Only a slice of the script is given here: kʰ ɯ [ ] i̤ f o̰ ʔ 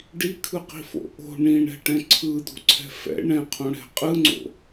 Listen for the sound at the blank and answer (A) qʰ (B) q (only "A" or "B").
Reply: B